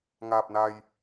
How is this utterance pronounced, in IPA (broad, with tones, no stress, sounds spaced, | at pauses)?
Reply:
ŋ aː˨˩ p̚ n a˨˩ j